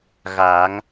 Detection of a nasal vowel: absent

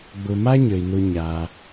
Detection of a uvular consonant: absent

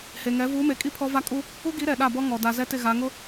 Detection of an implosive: present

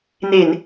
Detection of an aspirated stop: absent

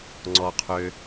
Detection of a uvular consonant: present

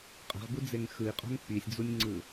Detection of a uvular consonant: present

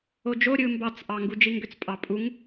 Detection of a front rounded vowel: present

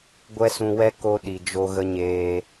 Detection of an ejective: absent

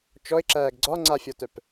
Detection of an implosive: absent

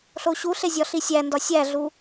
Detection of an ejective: absent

